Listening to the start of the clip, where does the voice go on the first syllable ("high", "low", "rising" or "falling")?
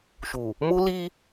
low